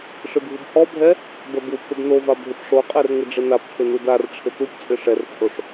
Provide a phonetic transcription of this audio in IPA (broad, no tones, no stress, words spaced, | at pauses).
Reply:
ʂɪbʱubhɔbʱɛ | bɛbupʰɪb nova bʱɪpʂoqʼɛr ŋɪɖ͡ʐɪnapʈʰɪ nudarʈ͡ʂʰɪ tupt͡sʼɪ ʂɛrt͡sʼoʂ